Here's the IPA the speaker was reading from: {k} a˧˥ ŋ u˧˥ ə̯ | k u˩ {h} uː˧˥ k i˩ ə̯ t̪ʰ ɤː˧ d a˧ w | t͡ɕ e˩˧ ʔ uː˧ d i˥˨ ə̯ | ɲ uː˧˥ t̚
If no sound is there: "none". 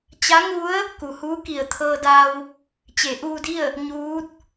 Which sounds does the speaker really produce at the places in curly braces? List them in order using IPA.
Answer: t͡ɕ, h

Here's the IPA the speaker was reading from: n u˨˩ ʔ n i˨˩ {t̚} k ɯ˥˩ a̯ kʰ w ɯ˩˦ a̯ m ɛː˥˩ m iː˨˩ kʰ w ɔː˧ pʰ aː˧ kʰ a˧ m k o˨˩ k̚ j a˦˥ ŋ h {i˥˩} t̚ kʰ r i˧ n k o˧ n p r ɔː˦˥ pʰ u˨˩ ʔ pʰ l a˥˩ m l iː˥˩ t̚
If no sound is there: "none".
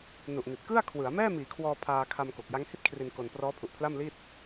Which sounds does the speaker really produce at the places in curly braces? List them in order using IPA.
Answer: t̚, i˥˩

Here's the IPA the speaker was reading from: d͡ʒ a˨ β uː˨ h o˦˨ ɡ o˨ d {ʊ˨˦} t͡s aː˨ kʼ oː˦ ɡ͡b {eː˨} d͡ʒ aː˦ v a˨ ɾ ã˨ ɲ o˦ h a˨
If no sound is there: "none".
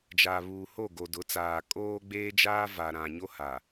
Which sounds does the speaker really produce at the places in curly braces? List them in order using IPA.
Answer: ʊ˨˦, eː˦

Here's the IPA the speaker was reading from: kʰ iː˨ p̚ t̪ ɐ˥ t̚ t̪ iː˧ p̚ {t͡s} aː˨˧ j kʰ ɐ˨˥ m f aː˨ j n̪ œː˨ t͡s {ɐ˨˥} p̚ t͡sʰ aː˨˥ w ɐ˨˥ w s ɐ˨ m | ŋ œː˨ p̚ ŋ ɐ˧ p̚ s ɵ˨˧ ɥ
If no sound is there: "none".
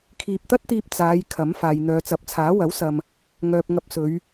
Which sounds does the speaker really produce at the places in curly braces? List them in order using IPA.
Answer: t͡s, ɐ˨˥

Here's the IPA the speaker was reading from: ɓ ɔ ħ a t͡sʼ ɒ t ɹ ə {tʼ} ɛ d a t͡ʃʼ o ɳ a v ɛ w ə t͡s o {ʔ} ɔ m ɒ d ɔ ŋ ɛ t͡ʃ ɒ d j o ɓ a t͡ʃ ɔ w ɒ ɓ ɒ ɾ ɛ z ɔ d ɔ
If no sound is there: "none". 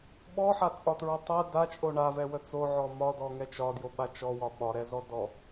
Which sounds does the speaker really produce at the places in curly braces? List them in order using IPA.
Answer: tˤ, ʕ

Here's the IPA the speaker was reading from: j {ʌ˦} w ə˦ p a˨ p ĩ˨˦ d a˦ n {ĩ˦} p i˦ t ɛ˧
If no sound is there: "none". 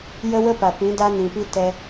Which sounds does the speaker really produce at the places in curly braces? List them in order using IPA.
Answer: ə˦, ĩ˨

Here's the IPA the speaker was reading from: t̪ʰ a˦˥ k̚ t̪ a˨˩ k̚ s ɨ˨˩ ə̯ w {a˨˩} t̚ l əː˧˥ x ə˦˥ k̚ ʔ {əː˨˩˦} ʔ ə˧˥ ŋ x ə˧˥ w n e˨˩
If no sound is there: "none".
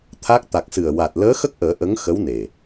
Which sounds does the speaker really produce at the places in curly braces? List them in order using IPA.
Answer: a˨˩, əː˨˩˦

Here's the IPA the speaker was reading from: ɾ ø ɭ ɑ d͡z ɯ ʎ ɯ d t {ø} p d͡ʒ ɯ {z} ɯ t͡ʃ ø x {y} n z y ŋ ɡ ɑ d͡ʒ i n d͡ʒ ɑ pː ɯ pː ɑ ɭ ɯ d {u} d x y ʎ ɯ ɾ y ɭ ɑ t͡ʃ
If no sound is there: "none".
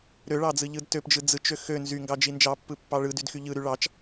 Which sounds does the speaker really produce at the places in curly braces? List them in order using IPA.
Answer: ø, d͡z, ø, y

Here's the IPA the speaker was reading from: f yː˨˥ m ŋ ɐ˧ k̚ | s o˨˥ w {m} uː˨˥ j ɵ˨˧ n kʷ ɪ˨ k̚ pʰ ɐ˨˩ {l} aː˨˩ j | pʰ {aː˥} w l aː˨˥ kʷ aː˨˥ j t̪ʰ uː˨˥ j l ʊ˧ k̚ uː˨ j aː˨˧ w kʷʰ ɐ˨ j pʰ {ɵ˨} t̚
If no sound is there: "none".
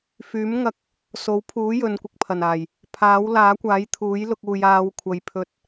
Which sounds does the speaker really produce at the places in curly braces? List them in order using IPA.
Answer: pʰ, n, aː˨˥, ɵ˧

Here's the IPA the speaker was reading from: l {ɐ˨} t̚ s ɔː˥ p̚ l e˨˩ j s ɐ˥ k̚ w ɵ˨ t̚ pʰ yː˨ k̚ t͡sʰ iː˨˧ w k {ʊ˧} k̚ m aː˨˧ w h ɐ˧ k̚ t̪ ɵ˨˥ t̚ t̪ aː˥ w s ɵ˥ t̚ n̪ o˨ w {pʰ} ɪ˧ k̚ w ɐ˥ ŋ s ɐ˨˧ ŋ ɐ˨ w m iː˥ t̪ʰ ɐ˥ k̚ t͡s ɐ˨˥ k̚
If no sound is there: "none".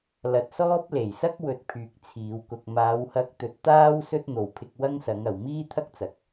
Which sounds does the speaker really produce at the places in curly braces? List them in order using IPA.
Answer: ɐ˨, ʊ˧, pʰ

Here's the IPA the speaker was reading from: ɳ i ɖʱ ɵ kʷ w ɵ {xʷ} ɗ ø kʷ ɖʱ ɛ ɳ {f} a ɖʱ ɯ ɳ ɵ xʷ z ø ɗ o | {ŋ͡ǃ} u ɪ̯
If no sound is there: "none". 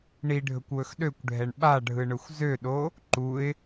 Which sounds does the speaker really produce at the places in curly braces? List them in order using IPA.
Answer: x, ɓ, ǃ

